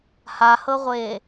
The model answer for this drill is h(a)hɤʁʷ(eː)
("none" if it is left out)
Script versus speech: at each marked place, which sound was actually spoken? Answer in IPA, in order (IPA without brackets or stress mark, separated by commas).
a, eː